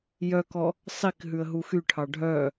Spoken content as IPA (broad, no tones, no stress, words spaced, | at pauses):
jœkɔ | sˤik ɦʉə̯ɦuxyʈʰɑ ɖʱœ